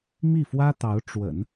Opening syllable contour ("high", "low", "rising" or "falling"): falling